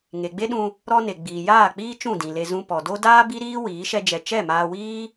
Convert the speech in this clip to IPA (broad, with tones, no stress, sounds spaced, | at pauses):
ŋ e˨ ɡ͡b e˦ ɗ ũ˧ | ɾ ɔ˦ n e˨ ɡ͡b iː˨ j aː˦˨ k͡p iː˦ t͡ʃ ũ˦˨ d ĩ˨ l e˧ z ũ˧ p ɔ˨ d o˦ d aː˦ b i˦ ɾ iː˦ w iː˨˦ ʃ ɛ˦ d͡ʒ ɛ˧ t͡ʃ ɛ˦˨ m aː˧ w iː˦